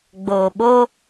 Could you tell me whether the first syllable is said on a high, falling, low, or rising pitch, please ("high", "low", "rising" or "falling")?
low